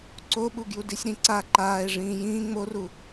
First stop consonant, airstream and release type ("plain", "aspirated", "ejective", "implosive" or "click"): click